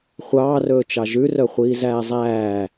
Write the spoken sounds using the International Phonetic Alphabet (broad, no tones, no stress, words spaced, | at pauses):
χʷɑːrɵːt͡ʃɑ ʒʉrœ χʷiːzæːzˤæː